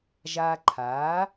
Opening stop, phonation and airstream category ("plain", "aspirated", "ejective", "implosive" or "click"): click